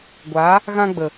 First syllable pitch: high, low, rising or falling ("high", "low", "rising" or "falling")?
rising